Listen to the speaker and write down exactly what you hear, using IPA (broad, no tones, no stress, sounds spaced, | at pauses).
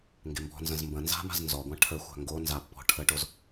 ŋ ɡ e m b ɔ̤ n z ə̃ z m b ə̃ n z a̤ m a̤ z n z ɔ ɡʷ ã ʈʰ ə xʷ a̤ ŋ ɡ o n z a pː ɔ̤ ʈʰ ə ʈ o z